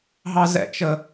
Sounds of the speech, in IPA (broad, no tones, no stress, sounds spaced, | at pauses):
ɦ ɑ z ɛ̰ t͡ʃ ə